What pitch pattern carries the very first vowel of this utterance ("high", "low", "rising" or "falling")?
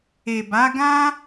low